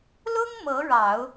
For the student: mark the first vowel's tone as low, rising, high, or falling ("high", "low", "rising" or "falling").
high